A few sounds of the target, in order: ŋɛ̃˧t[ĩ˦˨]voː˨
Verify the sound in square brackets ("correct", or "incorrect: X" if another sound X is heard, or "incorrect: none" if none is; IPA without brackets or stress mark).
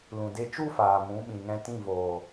correct